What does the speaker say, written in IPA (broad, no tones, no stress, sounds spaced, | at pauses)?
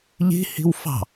ʎ i̤ h i̤ w f ɑ̤